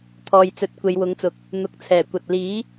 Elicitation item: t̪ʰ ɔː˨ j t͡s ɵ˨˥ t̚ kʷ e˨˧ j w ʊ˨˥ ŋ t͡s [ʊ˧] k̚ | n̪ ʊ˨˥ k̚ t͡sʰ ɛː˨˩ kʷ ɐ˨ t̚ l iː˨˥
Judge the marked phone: incorrect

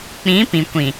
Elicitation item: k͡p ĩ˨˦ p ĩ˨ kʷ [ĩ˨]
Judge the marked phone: correct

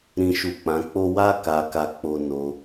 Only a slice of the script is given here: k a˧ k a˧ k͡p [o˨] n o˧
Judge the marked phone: incorrect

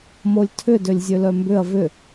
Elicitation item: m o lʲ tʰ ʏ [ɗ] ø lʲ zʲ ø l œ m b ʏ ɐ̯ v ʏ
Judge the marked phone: incorrect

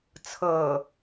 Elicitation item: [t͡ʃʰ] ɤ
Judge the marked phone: incorrect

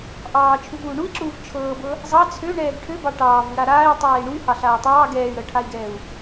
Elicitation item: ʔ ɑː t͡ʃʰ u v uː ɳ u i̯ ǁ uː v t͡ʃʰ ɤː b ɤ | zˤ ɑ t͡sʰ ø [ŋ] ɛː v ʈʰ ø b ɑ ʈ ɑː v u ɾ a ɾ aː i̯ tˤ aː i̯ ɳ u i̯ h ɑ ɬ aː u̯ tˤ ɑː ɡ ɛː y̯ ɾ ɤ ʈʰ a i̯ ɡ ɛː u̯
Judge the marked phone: incorrect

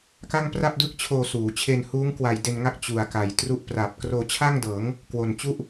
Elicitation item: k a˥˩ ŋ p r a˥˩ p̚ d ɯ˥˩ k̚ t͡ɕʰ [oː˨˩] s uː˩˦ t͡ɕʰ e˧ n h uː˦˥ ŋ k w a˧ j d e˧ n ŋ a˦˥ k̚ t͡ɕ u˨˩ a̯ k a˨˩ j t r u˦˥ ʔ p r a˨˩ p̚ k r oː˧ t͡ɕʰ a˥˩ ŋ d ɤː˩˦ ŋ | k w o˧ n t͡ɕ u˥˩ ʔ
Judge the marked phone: incorrect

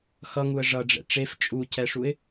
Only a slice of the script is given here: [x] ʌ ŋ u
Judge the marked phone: correct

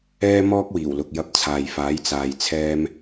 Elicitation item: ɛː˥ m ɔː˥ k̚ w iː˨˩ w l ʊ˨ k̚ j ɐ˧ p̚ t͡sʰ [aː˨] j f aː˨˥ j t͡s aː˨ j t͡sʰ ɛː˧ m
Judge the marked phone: correct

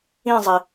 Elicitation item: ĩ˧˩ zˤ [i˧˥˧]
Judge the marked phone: incorrect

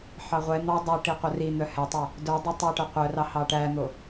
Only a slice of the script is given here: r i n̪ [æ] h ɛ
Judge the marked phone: incorrect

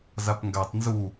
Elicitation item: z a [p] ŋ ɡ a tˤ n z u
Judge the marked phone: correct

